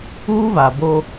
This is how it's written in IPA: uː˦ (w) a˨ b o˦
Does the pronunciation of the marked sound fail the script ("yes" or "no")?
yes